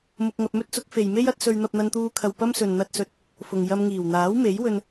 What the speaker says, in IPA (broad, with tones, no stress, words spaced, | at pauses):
mʊ˧k̚ŋɐ˧p̚mɵ˥t̚t͡sʊ˨˥k̚ fe˨jme˥j ɐ˥t̚sɵ˧ɥ n̪ɐ˧p̚n̪ɐ˧nt̪uː˧kʰɐ˨w pɐ˥msɵ˨n n̪ɐ˥t̚sɵ˧t̚ | fʊ˨ŋ jɐ˧mŋiː˨˩w n̪aː˨˥wme˨˥jwɵ˧n